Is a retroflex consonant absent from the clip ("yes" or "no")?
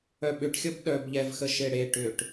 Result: no